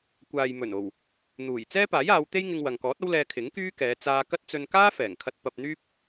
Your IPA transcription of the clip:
kʷaː˨jmɵ˨˩no˨˩w | n̪uː˨˩j t͡sɛː˥paː˨˥jaː˨˧wt̪e˥j ŋɪ˧ŋwɐ˨ŋkɔː˨˥t̚ɐ˥w lɛː˧kʰɪ˨˥ŋkyː˥kɛː˨˧ t͡saː˧kɐ˥t̚t͡sɵ˧n kaː˥fɛː˨˩ŋkʰɐ˧t̚ pɐ˧p̚n̪yː˥p̚

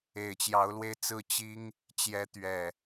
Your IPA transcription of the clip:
e˨˩ɪ̯t͡ɕjɑ˨˦ʊ̯lwe˧ɪ̯t͡sɹ̩˥˨ t͡ɕi˦ŋ | t͡ɕjɛ˦ t̪ɥɛ˨˩

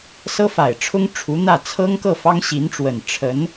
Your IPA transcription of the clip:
sɤ˥fa˨˩ɪ̯ʈ͡ʂʰʊ˥ŋ ʈ͡ʂʰu˧˥n̪ä˥˩ t͡sʰɤ˥ŋkɤ˥˩ fɑ˥ŋ ɕi˧˥nʈ͡ʂwə˨˩n ʈ͡ʂʰə˧˥n

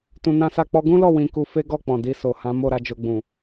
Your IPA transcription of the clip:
tũ˧nã˦sa˦˨ k͡pɔ˧ɡũ˦lɔ˦˨ wĩ˧ ku˧fe˦ɡɔ˦˨ k͡pɔ̃˨di˧so˨ hã˨˦ mo˦˨ɾa˨˦d͡ʒo˧ ɡ͡bũ˨

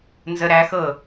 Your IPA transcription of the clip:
nzə ɾæxɤ

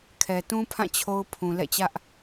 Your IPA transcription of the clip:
kʰɛ˨ tũ˦pʰã˦˨ t͡ɕʰo˦ʊ̯pʰũ˨ lɛ̰˦˨t͡ɕä˦ʔ

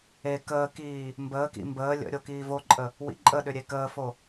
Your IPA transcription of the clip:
e kəːkiː | mbəːkḭ mbəː lʲə̰ ɾʲokiːvoǃʼə | wḭǃʼəɗʏ ɾʲekəːfo

